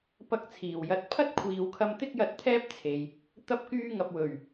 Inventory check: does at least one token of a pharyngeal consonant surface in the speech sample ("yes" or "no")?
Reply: no